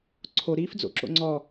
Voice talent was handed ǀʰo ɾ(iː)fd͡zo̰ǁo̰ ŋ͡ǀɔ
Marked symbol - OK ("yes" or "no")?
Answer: yes